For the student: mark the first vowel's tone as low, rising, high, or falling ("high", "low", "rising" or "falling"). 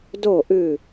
falling